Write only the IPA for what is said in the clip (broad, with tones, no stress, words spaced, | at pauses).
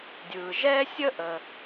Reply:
dʲɯ˩ʒɛ˥ sʲə˥ʔə˩